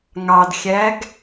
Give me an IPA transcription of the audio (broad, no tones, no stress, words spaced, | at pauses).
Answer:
ŋɑdxʲæɡ